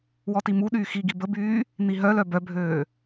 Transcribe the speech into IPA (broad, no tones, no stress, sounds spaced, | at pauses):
w ɔ t i m u ɗ yː x i ɡ i b ə b yː | n̪ i ɦ œ l œ b œ bʱ øː